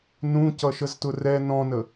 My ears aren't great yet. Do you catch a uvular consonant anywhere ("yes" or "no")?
no